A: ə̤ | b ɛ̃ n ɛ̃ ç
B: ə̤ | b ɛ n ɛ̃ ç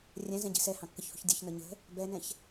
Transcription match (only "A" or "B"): B